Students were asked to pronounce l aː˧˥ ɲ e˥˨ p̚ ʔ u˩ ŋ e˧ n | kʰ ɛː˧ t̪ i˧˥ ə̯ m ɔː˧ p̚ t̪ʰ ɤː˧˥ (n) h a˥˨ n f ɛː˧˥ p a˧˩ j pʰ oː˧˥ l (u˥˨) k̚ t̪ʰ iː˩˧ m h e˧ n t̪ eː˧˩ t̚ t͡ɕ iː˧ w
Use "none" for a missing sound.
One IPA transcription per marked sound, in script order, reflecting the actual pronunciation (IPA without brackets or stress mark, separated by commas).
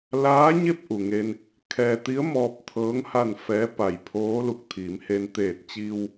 ŋ, u˧